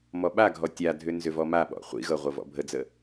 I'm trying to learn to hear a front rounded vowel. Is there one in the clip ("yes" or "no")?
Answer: yes